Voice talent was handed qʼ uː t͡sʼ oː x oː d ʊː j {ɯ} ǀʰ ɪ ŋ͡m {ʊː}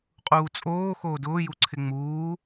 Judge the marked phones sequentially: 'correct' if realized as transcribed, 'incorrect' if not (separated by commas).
incorrect, incorrect